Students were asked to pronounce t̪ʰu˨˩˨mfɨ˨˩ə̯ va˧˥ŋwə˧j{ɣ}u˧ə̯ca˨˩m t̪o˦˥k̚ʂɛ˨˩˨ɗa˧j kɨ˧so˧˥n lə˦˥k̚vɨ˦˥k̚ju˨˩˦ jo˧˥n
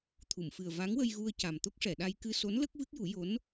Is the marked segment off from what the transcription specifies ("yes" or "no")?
no